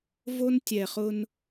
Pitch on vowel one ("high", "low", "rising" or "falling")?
high